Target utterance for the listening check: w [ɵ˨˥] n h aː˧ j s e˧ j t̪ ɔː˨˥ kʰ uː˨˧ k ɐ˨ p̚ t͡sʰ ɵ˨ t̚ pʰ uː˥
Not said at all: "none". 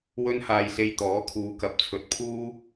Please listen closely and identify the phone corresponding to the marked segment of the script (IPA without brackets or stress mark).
ɵ˥